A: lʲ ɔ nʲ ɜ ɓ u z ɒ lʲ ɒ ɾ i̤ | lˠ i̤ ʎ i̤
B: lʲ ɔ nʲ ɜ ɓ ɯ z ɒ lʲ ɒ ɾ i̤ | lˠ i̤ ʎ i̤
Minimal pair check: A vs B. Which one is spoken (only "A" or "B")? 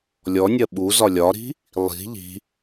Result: A